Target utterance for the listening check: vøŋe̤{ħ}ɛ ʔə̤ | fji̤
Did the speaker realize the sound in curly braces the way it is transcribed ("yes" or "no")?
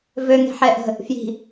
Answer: yes